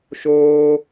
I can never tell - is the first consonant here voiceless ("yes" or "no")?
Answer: yes